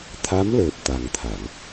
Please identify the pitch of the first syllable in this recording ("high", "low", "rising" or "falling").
rising